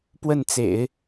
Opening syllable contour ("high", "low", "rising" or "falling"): falling